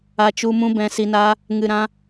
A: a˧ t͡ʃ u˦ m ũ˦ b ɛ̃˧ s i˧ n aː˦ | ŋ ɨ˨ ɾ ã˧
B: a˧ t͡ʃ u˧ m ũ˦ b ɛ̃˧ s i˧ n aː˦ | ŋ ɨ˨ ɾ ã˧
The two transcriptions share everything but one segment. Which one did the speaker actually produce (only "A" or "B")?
B